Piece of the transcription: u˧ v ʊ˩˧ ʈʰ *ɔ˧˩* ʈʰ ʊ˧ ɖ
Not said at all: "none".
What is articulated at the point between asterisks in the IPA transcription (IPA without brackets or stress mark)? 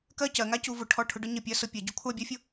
ɔ˧˩